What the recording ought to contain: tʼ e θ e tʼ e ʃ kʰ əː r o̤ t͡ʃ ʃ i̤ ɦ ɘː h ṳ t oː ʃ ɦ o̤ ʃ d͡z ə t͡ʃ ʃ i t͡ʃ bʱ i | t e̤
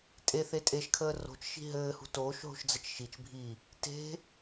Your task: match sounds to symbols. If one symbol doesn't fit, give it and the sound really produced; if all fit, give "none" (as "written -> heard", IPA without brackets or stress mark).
none